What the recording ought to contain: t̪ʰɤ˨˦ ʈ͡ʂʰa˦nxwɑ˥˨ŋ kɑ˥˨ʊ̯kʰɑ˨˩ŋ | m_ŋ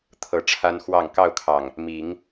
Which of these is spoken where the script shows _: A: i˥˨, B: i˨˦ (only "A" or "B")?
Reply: B